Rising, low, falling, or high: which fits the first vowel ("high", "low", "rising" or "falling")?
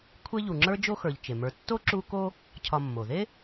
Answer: high